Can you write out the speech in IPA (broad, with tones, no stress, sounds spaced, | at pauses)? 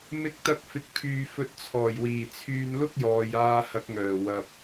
m ɪ˧ k̚ t̪ ɐ˧ k̚ f ɪ˨ k̚ pʰ yː˨ f ɵ˧ t̚ t͡sʰ ɔː˨˩ j w iː˨˩ t͡sʰ yː˧ n l ʊ˥ k̚ j ɔː˨ j aː˧ h ɐ˨˥ k̚ ŋ œː˨˩ w ɐ˨ p̚